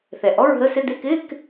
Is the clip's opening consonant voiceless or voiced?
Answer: voiceless